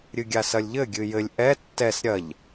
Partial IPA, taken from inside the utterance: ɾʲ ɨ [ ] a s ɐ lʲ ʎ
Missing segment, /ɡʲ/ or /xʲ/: ɡʲ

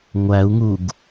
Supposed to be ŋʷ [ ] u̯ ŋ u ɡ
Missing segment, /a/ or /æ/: æ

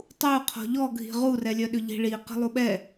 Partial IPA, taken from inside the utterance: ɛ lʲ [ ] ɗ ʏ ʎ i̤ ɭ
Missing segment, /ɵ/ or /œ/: œ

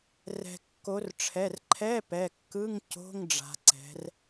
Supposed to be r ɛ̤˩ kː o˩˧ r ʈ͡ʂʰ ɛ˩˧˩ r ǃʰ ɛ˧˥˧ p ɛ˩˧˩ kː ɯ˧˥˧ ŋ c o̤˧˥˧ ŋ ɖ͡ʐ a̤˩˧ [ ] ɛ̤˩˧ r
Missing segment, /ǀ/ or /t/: ǀ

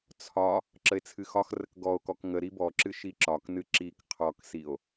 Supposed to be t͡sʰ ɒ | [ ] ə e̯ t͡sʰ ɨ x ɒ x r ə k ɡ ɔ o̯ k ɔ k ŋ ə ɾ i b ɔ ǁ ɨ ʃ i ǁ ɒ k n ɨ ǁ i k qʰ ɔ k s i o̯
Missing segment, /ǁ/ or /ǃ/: ǁ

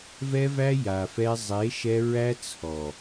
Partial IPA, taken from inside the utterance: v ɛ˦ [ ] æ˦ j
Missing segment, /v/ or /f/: v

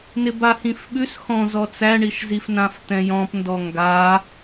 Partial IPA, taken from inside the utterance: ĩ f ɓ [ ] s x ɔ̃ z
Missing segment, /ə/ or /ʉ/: ʉ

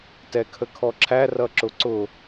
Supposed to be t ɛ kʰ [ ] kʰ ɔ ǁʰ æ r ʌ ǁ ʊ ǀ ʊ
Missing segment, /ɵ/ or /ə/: ə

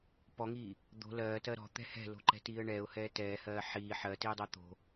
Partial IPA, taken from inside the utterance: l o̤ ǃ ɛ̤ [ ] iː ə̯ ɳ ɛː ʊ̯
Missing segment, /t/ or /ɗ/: t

